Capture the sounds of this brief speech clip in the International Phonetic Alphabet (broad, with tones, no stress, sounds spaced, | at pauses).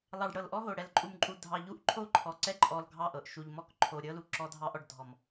lˠ ɑ˨ ɖ ɽ ɤ˨ l ʔ ɔ˦ ɦ o˨ ɽ ɛ˨ l ǃʼ u˨ m ǃʼ u˨ dʱ ɑ˨ ʎ u˦ ʔ ǃʰ o˦ ǃʰ ɔ˨ ǀ ɛ˦ ǃʼ ɔ˨ l ɡʱ ɑ˦˨ ʔ ɤ˨ ʔ ʃ u˨ ʎ m ɔ˦ k ǃʰ o˨ ɾʲ ɤ˦ l u˨ ǁ ɔ˦ dʱ ɑ˦ ʔ ɔ˨ ɖ dʱ ɔ˨ m